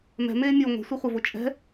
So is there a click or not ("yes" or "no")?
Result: no